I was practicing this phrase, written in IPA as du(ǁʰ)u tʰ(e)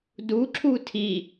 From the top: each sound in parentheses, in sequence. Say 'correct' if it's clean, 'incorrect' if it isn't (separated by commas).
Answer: correct, incorrect